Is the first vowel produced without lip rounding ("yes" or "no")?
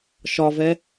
no